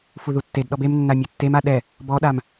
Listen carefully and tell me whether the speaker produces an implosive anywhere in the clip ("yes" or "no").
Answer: yes